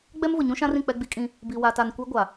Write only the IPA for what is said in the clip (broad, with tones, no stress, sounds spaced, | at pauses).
ɡ͡b ɛ˦ m v ʊ˨ ɲ ũ˦ ʃ ã˦ r ĩ˨ k͡p ɛ˦ ɡ͡b i˦ kʼ ĩ˦ | b i˨ w a˨ t a˨ n kʷ e˦ ɡʷ a˨